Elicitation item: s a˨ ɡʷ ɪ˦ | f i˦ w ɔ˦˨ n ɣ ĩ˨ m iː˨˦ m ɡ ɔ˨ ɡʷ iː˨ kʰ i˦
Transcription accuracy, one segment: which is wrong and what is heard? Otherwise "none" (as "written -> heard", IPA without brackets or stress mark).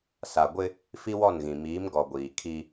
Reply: none